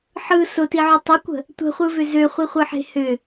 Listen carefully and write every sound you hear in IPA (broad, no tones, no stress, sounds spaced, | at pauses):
ħ ɯ s ʊ t i ʕ ʏ tˤ ʏ kʷ ə̤ | tʷ ə̤ χʷ ɯ v ʏ z ø χʷ i χʷ ɯ ħ e̤ h ʏ